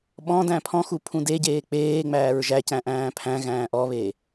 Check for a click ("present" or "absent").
absent